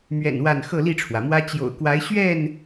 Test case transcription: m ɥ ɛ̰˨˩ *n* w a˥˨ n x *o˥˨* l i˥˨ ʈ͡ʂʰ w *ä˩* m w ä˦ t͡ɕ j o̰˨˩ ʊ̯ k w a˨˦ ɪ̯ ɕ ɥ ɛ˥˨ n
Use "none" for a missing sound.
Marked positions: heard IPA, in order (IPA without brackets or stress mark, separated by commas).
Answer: n, ɤ˥˨, ä˩